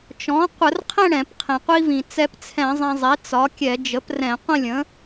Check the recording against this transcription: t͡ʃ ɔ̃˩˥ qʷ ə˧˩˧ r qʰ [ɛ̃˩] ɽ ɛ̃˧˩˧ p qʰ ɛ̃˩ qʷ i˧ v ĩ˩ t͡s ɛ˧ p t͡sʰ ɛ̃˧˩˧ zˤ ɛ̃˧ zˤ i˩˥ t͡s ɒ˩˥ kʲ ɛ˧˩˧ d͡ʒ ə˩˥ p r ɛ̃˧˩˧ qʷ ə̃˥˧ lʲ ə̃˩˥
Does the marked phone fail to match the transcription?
yes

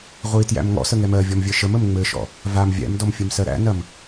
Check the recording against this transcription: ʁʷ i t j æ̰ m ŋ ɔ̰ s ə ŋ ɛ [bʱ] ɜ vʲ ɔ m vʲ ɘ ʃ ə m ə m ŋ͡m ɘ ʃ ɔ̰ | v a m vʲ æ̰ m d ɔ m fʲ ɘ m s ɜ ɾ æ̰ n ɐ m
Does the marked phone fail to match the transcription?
yes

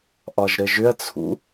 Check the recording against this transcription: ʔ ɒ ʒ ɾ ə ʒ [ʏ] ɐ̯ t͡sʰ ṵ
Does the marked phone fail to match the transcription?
no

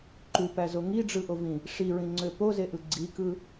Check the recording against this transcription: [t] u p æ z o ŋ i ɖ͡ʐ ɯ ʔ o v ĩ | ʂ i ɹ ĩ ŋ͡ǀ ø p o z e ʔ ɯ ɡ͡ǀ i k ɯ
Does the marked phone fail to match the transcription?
yes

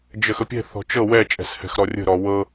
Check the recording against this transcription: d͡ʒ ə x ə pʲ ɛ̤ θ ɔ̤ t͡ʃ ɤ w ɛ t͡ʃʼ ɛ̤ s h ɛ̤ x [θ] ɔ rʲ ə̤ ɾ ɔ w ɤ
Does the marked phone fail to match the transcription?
yes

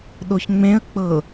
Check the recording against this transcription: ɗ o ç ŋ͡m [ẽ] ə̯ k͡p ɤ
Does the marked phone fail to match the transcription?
no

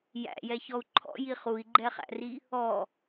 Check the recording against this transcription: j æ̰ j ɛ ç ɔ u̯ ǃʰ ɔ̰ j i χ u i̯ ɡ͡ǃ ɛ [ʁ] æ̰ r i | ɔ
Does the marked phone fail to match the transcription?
yes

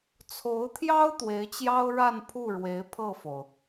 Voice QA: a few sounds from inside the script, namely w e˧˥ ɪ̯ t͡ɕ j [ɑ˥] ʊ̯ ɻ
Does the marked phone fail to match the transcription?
no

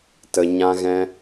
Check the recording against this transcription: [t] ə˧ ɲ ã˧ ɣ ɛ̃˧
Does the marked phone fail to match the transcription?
no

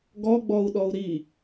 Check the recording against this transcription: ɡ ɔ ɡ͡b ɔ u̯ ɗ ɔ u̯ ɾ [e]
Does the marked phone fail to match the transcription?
yes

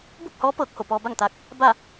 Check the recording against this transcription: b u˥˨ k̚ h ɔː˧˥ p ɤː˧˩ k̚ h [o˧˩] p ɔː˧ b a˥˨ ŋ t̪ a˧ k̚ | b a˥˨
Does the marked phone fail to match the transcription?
no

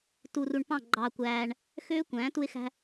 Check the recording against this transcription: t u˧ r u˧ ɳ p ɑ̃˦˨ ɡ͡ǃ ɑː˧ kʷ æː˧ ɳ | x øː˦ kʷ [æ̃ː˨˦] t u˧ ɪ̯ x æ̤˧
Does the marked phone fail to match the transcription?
no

